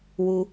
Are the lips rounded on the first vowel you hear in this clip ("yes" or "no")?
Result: yes